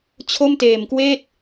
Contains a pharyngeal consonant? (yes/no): no